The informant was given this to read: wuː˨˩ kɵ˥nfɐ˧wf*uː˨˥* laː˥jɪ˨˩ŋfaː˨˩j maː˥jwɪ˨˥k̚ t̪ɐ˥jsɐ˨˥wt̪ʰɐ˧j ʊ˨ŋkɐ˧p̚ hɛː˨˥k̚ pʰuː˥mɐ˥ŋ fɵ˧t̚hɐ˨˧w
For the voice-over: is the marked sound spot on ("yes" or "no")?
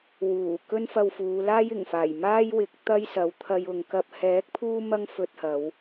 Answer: no